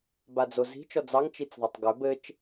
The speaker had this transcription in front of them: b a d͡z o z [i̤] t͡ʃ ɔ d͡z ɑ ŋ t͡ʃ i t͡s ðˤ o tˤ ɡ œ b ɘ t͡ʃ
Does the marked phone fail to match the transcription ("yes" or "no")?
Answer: no